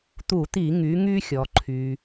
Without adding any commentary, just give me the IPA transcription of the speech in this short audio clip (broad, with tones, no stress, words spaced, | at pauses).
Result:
t̪u˧˩˧t̪i˧˩˧ ŋy˩˧ŋy˧ xʲɔ˩ ǃʰy˩